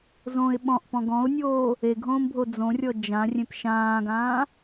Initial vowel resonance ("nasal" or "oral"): nasal